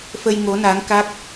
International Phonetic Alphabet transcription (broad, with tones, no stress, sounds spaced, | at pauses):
f ə˧ j ŋ o˨˦ n a˨˦ ŋ k a˦˥ k̚